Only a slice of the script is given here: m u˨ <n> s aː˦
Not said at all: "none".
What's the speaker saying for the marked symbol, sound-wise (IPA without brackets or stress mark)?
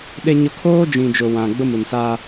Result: n